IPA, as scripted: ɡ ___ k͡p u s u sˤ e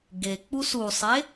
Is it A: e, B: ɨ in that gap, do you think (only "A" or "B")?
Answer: A